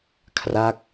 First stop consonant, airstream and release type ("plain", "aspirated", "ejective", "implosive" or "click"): aspirated